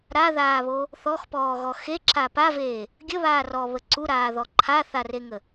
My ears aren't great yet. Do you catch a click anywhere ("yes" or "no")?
yes